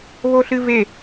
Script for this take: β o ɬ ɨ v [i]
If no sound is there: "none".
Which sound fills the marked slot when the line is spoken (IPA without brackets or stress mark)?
e